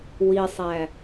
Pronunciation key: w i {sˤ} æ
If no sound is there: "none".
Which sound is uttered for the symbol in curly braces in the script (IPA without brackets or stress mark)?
sˤ